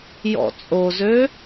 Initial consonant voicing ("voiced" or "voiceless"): voiced